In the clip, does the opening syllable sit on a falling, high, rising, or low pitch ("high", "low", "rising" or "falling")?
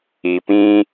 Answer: low